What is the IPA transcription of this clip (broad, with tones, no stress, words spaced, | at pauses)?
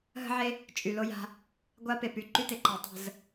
ɦə̤˦ʕe˦ | t͡ʃʼy˨lo˦ja̤˦ | ɡʷa˦pe˨py˦ ǃy˦te˨ ǃa˨ tˤə̤˦˨z